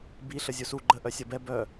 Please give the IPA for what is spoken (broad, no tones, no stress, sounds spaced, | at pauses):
b i ɬ ə zʲ u s u ɡ͡ǃ ə ʔ œ sʲ ʌ b ɛ b œ